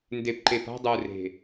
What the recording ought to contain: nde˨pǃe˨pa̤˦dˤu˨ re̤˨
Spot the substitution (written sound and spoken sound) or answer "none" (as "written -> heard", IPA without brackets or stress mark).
none